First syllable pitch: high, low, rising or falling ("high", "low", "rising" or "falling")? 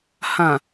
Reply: low